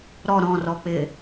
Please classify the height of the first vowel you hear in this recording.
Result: mid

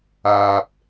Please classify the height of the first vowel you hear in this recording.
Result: low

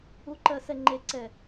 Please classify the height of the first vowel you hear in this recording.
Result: high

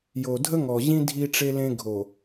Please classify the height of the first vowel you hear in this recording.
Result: mid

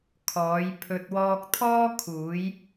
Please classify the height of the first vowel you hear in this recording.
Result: mid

